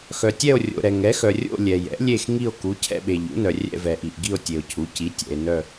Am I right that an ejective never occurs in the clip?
yes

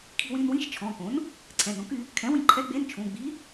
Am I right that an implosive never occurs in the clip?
yes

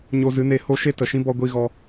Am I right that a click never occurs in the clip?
yes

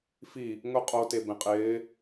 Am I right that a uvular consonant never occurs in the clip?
no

